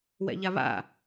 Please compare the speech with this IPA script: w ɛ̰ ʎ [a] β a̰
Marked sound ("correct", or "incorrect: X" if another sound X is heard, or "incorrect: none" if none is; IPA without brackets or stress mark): correct